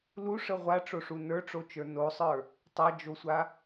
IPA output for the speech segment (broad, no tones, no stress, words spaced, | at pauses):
luʂə ʁʷaʈ͡ʂoʂu nə˞ʈ͡ʂot͡ʃə˞ nosˤə˞ | tˤad͡ʒosʷa